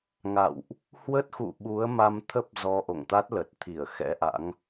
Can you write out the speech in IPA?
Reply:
ŋa̰˧˨wʔ | hwə˦˥t̚xṵ˧˨ ɓu˨˦ə̯ma˧mt̪ʰə˦˥p̚ zɔ˧ʔo̰˧˨ŋt̪a˦˥t̚lə˨˩t̚ t̪ʰi˧˩ə̯ xɛ̰˧˥ʔa̰˧˥ŋ

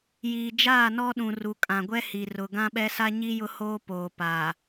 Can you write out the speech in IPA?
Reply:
jiː˨d͡ʒaː˦˨nɔ˦ɗũ˨ ru˨kʼã˨ɡʷɛ˦hi˨ rʊ˨ɡã˦ɓɛ˦ sa˦ɲi˦jʊ˦ hoː˦poː˨paː˨

